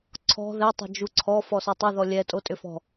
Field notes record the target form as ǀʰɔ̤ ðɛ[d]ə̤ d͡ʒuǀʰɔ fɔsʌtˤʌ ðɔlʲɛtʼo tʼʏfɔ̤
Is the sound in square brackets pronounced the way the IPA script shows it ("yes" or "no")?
no